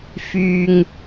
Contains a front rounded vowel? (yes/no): yes